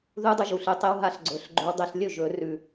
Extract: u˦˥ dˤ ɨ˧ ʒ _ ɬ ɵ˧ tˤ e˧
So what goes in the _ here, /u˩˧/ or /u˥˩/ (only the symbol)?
u˩˧